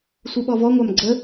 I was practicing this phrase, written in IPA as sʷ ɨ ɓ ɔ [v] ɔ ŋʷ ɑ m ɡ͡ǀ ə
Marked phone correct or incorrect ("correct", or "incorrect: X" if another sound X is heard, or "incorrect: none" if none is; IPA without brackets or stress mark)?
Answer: correct